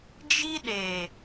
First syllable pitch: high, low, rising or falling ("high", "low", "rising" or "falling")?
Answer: high